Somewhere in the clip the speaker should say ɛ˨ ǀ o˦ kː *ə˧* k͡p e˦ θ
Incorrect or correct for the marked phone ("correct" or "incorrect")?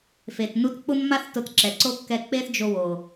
incorrect